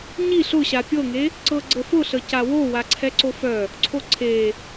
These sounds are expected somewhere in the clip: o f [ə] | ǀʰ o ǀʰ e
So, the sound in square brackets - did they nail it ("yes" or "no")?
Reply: no